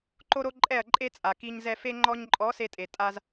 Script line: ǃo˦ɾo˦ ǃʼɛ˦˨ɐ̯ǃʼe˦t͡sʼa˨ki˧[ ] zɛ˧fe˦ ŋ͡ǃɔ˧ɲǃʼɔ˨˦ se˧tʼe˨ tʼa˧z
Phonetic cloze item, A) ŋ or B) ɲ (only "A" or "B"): B